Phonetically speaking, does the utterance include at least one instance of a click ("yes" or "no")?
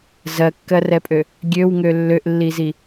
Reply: no